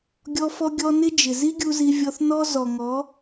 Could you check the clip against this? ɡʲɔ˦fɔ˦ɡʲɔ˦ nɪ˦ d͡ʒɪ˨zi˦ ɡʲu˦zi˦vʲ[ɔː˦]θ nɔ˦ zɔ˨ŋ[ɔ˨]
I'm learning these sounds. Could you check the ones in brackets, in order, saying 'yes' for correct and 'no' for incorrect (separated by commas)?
no, no